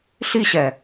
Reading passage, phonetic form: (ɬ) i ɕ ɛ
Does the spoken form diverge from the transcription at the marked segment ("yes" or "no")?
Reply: no